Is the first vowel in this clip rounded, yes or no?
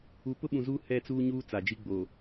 yes